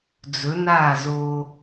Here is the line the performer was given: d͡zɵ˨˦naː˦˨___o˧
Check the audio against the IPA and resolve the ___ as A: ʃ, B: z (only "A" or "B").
B